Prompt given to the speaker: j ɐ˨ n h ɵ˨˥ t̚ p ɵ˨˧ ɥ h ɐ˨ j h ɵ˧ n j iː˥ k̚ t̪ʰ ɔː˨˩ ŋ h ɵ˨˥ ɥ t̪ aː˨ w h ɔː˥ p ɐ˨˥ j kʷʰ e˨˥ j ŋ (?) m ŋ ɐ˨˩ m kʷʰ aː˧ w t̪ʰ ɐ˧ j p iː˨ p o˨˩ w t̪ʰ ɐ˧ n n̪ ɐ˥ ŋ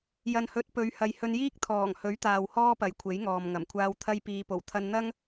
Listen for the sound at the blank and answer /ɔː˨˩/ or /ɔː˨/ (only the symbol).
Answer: ɔː˨